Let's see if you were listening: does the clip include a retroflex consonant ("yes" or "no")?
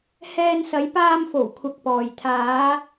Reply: no